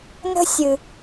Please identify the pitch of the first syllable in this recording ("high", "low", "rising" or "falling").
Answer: high